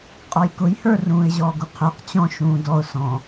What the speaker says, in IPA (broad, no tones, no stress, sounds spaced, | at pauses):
qʼ ɔ j k ʊ j h ə˞ r ũː ɪ̯ ʑ ɔː ɡ u qʰ ə˞ q t͡ɕ ɔ̃ ʃ ũː d ɔ ʊ̯ s ɔ̃